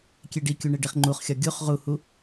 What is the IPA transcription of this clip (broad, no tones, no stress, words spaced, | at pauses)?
kʲeɖikʲu ɳeɖiχŋ͡ǃuχxʲɒ ɡʲuχ ʁuhu